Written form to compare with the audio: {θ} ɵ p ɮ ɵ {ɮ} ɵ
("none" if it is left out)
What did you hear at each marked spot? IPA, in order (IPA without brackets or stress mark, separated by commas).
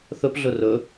θ, r